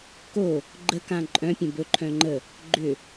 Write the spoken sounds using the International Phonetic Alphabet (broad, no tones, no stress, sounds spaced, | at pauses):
k o | ɡ͡ǃ ə k ã ǃʼ œ̃ pʲ ə̃ b ɵ ǃʰ œ̃ ŋ͡ǃ ə | ɡ͡ǃ ʏ